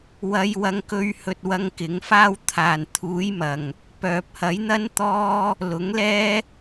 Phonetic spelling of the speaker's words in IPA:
w ɐ˧ j w ɐ˧ ŋ k ɵ˧ ɥ h ɵ˧ t̚ w ɐ˧ ŋ k ɪ˨˥ ŋ f aː˥ w t̪ʰ aː˨˩ n t̪ʰ uː˨˥ j m ɐ˨˩ ŋ | p œː˨ p̚ h ɐ˨˥ j n̪ ɐ˥ n t̪ ɔː˥ | l ʊ˨˥ ŋ l ɛː˥

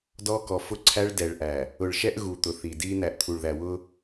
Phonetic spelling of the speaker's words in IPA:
d ɔ˦ k ɔ˨ f ʊ˦ ǀʰ æ˦ ɭ d ɛ˨ ɭ ʔ æ˨ | ʊ˨ ɭ ʃ ɛ˦ ʔ ɣ u˨ t̪ ʊ˨ θ i˨ d i˦ n̪ æ˨ ʔ t̪ʰ u˨ ɭ ð æ˨ w ʊ˦

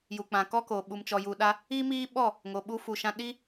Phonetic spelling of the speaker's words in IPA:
j u˨ k͡p ã˨ k ɔ˦ k oː˨ ɓ u˨ m t͡ʃ ɔ˨ j u˨ ɗ a˧ | i˦ m iː˦ ɓ ɔ˦˨ | ŋ o˨ ɓ u˧ f u˨ ʃ ã˧ ɗ i˦

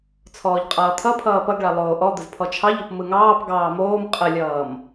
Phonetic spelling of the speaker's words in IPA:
t͡sʰ ɔː ʎ qʼ ʌː t̪ʰ ʌ pʰ ʌː p ʌ ɡ ɭ a lˠ oː ʔ ɔ d̪ ə z pʰ ɔ t͡ʃʰ ɑ ʎ o p m ɯ ŋ ɑː p ɡ ɑː m oː m qʼ ə lʲ ʌː m

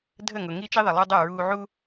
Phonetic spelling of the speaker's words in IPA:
dʱ ə˦˨ ŋ ʊ˨ ŋ i˦ t͡ʃ i˦ ðˤ i˨ lˠ o˦ dˤ ɤ˦˨ ɹ uː˦ ʕ u˦

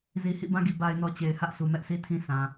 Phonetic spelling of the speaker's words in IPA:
z i˨ h ḭ˦˨ b ã˦ ɡ i˨ b a˨ ɪ̯ n ɔ˨ t͡ɕ e˨ ɪ̯ h ä˦ ʔ s u˨ m ɛ˦ ʔ s i˦ tʰ ĩ˦ sʰ ã˨

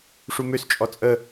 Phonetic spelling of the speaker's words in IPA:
ʂ u m ø s t͡ʃʼ ɔ t͡sʼ ə

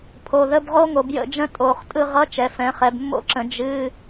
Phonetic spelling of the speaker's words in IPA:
pʰ o˩˧˩ ð ə˧˥˧ b ʁ o˦˥ ŋ o˩˧ b j ə̰˦˨ d͡ʒ ə̃˦˥ tʼ o˩˧˩ χ tʼ ɯ˦˨ ʁ ʌ˧˥˧ t͡ʃ ɛ˩˧ f ɛ̃˩˧ χ ɛ˩˧ b mː o̰˦˨ ǁ ə̃˩˧ d͡ʒ ɨ˧˥˧

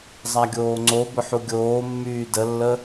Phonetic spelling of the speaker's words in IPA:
zˤ a ɡʲ oː ŋ͡ǀ o b ʊ ħ u ɡʲ oː mː yː d ə lː ə

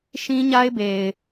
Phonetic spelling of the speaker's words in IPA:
ʃ ĩ˦ ɲ a˦ ɪ̯ b e˨ ɪ̯

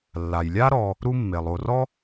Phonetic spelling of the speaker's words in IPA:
lː a˩ j lʲ a˥ ɾ ɔ˨ | ɾ u˦ mː e˩ lˠ o˨ r ɔ˥

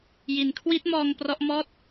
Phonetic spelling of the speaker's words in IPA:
j i˩˦ n kʰ w i˦˥ t̚ m ɔː˧ ŋ p r ɔ˦˥ ʔ m ɔː˥˩ t̚

